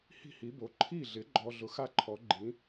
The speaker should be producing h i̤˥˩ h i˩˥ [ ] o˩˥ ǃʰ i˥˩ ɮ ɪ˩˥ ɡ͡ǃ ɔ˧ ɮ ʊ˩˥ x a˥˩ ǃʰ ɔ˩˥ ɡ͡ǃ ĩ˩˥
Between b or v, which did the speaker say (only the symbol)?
b